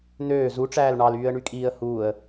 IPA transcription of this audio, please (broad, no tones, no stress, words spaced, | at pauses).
n̪øː zuʈ͡ʂæːl ɳɑlyːə̯ɳykʼiːə̯ huːə̯